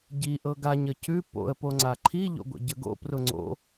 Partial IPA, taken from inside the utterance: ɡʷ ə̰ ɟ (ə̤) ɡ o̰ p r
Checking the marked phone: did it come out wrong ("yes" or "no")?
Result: yes